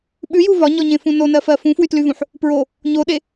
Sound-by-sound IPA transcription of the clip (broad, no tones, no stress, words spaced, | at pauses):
ɓʉju vɒɲɔɲẽfũ nonɜfɜ fũfwytlyvũħ | pɹo | ɲoɗe